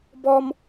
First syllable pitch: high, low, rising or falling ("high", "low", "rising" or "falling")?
high